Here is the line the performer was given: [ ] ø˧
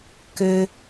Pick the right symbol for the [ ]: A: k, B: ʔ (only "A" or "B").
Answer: A